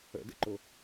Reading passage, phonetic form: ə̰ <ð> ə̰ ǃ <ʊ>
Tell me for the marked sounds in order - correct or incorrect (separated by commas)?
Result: incorrect, correct